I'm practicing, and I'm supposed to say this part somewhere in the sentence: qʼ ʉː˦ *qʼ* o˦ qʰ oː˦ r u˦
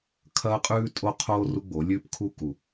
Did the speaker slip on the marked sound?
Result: yes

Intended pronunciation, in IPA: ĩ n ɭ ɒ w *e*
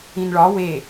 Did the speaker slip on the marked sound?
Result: no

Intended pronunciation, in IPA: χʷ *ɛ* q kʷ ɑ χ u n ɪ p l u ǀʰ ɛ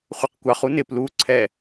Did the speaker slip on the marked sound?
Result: no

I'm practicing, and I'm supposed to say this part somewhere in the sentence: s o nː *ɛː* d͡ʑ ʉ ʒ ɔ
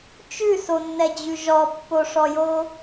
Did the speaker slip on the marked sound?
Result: yes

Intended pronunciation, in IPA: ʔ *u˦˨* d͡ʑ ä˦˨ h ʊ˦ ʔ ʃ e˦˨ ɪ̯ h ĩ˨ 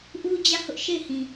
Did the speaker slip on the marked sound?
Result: yes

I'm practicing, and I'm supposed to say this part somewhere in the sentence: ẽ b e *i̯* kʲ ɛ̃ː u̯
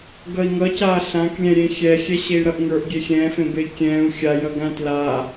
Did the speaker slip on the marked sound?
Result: no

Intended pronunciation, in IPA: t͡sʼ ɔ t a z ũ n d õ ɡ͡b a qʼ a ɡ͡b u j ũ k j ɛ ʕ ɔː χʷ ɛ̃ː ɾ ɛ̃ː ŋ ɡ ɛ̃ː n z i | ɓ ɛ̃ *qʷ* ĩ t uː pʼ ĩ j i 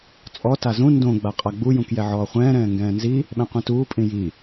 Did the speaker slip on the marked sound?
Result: no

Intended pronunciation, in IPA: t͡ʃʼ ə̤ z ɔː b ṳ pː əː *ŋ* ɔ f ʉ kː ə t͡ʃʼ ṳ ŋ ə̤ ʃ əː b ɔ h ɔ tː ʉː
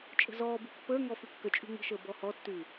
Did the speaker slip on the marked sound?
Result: no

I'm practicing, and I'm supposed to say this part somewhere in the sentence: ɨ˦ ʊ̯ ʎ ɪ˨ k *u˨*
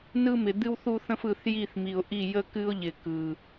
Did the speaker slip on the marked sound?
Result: yes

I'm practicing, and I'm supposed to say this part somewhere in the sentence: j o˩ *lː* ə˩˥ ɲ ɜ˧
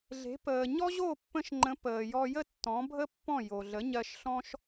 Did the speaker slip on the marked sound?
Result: yes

